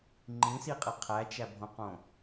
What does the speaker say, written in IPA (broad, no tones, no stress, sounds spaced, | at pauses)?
ŋ͡ǃ ĩ s i qʼ e qʰ æ t͡ʃ æ bʱ õ q õ